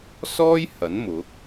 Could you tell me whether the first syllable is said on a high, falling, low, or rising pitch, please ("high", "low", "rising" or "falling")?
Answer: high